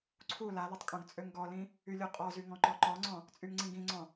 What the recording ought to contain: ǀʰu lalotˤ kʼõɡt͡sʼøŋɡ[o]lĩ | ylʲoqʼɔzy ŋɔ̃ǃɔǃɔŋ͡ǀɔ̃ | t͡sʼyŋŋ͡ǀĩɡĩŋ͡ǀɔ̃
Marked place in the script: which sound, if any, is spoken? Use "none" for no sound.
ɔ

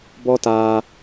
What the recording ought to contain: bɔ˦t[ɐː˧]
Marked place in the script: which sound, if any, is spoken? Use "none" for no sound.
aː˧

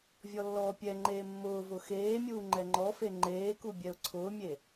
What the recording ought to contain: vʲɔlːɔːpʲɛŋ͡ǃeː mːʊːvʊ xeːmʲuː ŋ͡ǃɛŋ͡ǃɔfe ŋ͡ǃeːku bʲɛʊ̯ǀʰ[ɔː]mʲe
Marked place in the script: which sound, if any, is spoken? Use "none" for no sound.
ʊː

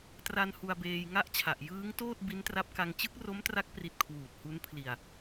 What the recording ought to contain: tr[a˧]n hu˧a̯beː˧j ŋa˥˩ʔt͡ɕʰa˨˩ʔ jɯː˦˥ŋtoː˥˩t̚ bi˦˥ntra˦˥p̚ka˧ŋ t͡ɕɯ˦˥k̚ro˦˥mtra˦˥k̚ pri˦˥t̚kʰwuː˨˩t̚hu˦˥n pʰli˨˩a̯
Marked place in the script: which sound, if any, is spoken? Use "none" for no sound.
a˧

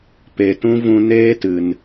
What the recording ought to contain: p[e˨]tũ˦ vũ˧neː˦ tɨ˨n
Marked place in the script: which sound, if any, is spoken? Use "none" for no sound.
e˨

